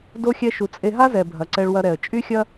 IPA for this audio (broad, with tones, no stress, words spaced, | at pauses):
do˦xʲɛ˦ʃu˧ t͡sʼe˧ɦa˦zɛ˨ bʱɐ˨ǀɛ˧ɭwɐ˧ɾɛ˨ə̯ t͡ʃʼy˦xʲɐ˦